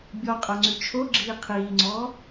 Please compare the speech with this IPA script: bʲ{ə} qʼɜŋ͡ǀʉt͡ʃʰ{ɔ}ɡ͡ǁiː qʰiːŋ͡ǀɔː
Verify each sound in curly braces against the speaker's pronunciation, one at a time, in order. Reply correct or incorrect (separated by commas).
incorrect, incorrect